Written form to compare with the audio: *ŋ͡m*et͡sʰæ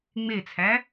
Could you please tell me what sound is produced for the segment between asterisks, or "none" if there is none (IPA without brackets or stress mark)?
ŋ͡m